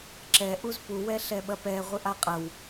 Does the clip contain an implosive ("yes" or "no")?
yes